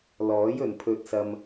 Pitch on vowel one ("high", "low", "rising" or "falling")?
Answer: rising